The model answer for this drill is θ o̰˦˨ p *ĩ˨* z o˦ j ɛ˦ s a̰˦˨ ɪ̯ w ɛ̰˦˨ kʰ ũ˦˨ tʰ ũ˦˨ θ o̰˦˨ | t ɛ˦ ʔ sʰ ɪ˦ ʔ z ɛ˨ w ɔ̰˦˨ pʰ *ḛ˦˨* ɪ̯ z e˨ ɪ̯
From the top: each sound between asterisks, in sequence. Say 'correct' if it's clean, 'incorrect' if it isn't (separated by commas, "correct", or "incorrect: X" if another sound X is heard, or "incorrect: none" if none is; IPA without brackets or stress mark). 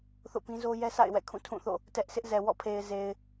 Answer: incorrect: ĩ˦, incorrect: e˨